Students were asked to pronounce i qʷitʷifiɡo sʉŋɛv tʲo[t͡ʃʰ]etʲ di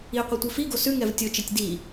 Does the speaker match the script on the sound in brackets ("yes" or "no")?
no